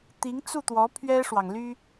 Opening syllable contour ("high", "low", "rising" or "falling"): rising